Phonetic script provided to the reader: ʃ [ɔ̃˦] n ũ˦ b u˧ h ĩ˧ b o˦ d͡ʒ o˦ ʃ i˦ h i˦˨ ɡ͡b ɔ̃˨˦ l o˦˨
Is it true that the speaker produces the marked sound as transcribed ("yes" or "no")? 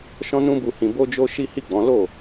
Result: yes